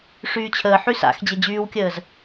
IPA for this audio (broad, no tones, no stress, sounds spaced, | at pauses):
ʂ yː t͡ɕʰ əː ħ y s a̰ x d͡ʑ e d͡ʑ yː w kʲ əː z